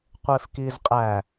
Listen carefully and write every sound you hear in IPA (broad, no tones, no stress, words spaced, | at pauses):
qʷefkizqʼæ